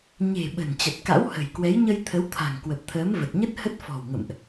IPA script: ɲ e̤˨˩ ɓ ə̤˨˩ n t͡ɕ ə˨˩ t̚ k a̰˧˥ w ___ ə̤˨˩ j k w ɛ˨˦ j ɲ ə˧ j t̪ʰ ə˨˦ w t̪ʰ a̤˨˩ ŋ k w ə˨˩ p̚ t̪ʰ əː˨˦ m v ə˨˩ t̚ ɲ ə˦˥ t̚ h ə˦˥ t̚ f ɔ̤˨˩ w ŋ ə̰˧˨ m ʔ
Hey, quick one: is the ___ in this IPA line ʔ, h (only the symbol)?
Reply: h